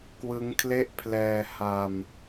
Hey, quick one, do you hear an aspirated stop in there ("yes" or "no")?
yes